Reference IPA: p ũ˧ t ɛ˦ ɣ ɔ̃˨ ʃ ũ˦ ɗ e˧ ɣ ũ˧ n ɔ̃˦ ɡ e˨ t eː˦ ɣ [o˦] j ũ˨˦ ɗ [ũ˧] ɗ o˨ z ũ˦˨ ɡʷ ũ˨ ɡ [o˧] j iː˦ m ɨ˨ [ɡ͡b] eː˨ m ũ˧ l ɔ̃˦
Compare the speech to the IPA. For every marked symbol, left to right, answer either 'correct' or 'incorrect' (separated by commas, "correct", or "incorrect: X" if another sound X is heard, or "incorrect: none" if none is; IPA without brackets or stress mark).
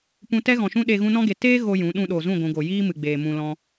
correct, correct, incorrect: o˨, correct